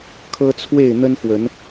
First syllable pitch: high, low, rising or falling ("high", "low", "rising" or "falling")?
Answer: high